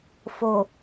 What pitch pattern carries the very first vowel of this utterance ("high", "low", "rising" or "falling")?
low